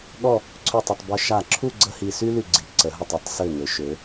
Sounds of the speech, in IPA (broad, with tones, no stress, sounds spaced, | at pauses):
ɠ ɔ˥˧ | ǀʰ ø˥˧ tˤ ə˧ tˤ b œ˧ ʃ a˧˩ ǁʰ u˥˧ ɡ͡ǀ ə˥ h i˧ s y˥ l y˧˩ ɡ͡ǀ i˩˧ ǀ ə˩˧ ɦ ʏ˧˩ tˤ ɔ˩˧ tˤ s ø˧˩ ŋ ø˩˧ ʃ ø˩˧